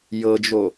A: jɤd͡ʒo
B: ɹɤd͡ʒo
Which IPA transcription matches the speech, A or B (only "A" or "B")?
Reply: A